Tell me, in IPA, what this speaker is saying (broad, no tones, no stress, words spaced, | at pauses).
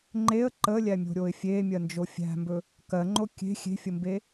ŋ͡ǃeə̯ ǃəlʲæmʲo̤ɾʲoɪ̯ fʲemʲɜnd͡ʒo fʲæ̤mbɵ | kɜŋ͡ǃo kʲe̤ xʲe̤fʲəmbe